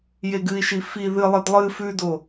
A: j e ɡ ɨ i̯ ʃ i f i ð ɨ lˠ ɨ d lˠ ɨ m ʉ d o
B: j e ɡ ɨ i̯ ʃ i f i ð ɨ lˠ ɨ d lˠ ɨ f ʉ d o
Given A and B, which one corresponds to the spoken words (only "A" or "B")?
B